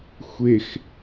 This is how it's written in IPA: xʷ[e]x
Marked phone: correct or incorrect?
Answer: correct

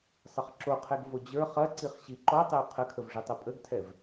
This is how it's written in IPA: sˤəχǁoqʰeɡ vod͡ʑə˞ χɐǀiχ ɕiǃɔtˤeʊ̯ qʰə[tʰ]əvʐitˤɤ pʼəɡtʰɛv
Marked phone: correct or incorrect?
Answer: incorrect: kʰ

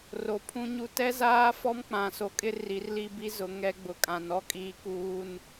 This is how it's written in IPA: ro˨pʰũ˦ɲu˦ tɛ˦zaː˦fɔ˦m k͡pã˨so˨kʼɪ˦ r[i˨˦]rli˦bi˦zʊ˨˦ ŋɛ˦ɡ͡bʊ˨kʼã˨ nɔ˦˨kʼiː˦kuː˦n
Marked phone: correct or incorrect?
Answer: correct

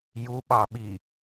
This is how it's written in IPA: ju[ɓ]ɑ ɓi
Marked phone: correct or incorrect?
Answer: correct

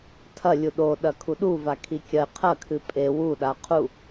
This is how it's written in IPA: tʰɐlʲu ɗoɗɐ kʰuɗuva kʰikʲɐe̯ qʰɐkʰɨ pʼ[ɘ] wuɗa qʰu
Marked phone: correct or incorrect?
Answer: incorrect: e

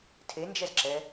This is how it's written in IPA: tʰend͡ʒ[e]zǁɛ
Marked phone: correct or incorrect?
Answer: incorrect: ɛ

